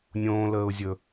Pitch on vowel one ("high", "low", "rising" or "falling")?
high